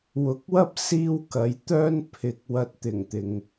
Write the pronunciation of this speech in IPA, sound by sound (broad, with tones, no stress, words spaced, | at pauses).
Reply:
wʊ˨˥k̚wɐ˥p̚ siː˥wkɐ˨˧j t̪œː˥npʰɪ˨k̚ wɐ˧t̚t̪ɪ˨˩ŋt̪ɪ˨ŋ